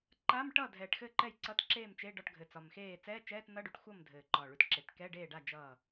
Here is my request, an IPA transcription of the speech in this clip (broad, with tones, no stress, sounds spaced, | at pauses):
ǃ a˧˥˧ m ʈ ʌ˥˩ dʱ ɛː˨˩ ʈ x ɘ˥˩ ǃ ɛ˥˩ j ǀ ʌ˧˥˧ t ǁ eː˥˩ m t͡ʃ e˧˥˧ ɖ ɒ˥˩ ʈ ɡʱ ɘ˨˩ t͡s ɒ˨˩ m x eː˥˩ t͡s ɛː˧˥˧ t͡ʃ ɛː˧˥˧ t n ʌ˧˥˧ ɖ ʉ˨˩ ʈ xʷ ʌ˥˩ m dʱ ɘː˨˩ ǃ ɒː˨˩ ɭ ʉ˨˩ t ǁ e˨˩ t k ɛ˧˥˧ ɖ eː˥˩ ɖ a˥˩ d͡ʒ ʌː˥˩